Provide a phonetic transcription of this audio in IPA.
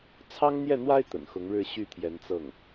t͡sʰ ɑ˥ ŋ n̪ j ɛ˥˩ n̪ w a˥ ɪ̯ t̪ ə̰˨˩ n x ʊ˧˥ ŋ ɻ ɻ̩˥˧ ɕ y˥˩ t̪ʰ j ɛ˧˥ n t͡s ɤ˥˩ ŋ

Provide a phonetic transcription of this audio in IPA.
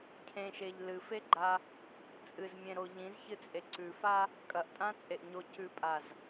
cʰ ẽ ʃ e ʎ l ɨ f e ɡ͡ǃ a | t͡sʼ ɨ z mʲ ẽ ɾ o ʎ ĩ z ç ɨ t͡sʼ e ǀ ʉ f a | kʼ ɐ ʔ tʼ ã t͡sʼ e ʔ ɲ o c ʉ pʼ a z

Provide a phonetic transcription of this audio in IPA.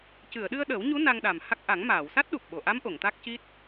c ɨ˨˩˨ ə̯ ɗ ɨ˧ ə̯ ɗ ə˨˩˦ w ɲ u˧˥ n a˧ ŋ ɗ a˨˩ m h a˦˥ k̚ ʔ a˨˩˦ ŋ m aː˨˩˨ w s a˦˥ t̚ ɗ u˨˩ p̚ ɓ o˨˩˨ ʔ a˧˥ m ʔ o˨˩˨ ŋ t̪ a˦˥ k̚ c i˦˥ t̚

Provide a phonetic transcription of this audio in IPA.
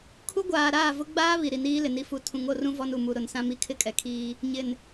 kʰ u˦ ɡʷ aː˨ ɾ aː˦˨ v ʊ˦ ɡ͡b aː˦ β i˨ ɾ i˨ n iː˦ l ɪ˨ n i˨ f u˨ tʰ ũ˨˦ ŋ o˨ r ũ˦ v ɔ˦ n u˨ m u˨ ɾ ʊ˨ n s ã˦ m i˦ kʰ ɪ˦ kʼ ɛ˨ kʰ iː˦ | ɲ ɪ˨ n

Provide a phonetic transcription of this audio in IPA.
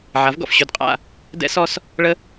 ʕ a˨˦ v ɡ ɔ̰˨ f ɕ ɵ˦˨ d qʼ a̰˦˨ | d ɛ̰˦ s ɔ˦ s | ɭ ə˦

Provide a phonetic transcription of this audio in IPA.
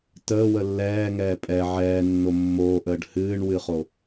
t əː w ə lː ɛː ŋ ɛː pʼ ɛ ʕ ɛː nː o mː oː ʔ əː ɖ h ɨː ɳ w ɨ χ o

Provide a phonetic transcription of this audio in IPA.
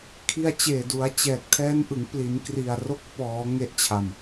kʰ i˧ a̯ t͡ɕ eː˨˩ d u˩˦ a̯ t͡ɕ ɛː˨˩ k̚ tʰ ɛː˦˥ n ʔ ɯ˩˦ ŋ p l i˩˦ n k r i˨˩ a̯ r o˦˥ k̚ p ɔː˩˦ ŋ e˦˥ ʔ t͡ɕʰ a˨˩ m

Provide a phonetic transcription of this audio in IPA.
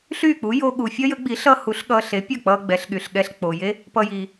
ɬ yː˥˩ k͡p u˩˥ j o˧ ɠ u˩ fʲ ʌ˥ j ə˩˥ ɡ͡b i˩˥ ɬ ʌ˥ h u˩˥ ɬ ɠ ʌː˧ ɬ e˩˥ pʲ ʌ˥˩ k͡p ʌː˧ ɡ͡b ɛ˩˥ ɬ ɠ y˩ ɬ ɠ ɛ˧ ɬ k͡p o˩ j e˥ | p ʌ˧ j iː˩

